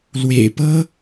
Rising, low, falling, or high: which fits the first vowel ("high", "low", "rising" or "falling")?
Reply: low